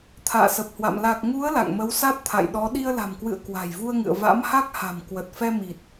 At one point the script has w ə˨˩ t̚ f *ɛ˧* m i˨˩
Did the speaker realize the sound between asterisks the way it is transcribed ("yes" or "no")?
yes